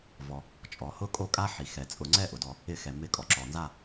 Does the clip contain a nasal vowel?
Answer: no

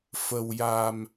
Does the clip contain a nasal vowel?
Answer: no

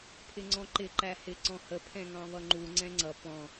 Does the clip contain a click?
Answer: yes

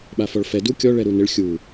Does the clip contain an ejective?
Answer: no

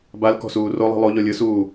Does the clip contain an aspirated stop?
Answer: no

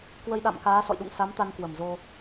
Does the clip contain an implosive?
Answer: yes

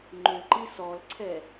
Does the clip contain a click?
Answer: yes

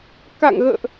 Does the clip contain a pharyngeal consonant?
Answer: no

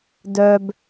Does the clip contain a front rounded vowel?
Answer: yes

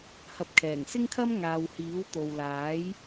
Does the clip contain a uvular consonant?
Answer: no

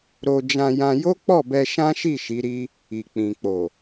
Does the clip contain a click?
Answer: no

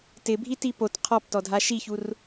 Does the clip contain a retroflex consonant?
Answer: no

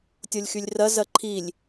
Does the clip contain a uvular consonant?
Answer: no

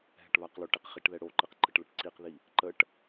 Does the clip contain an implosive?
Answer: no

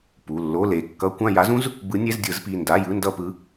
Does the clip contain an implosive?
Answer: no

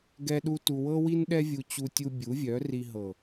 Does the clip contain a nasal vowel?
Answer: no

